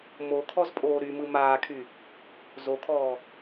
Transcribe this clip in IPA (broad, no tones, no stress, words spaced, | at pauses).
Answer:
mo kʰɔzpʼoːɾymɯ maːkʰy | zokʰɔː